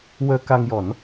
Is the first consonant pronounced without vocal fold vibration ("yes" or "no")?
no